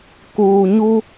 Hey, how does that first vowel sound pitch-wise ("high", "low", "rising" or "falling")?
low